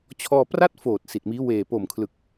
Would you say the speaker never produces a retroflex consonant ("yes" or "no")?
yes